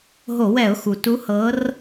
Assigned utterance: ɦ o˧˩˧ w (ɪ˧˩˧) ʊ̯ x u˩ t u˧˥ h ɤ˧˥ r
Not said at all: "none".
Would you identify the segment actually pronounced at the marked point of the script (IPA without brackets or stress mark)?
ɛ˧˩˧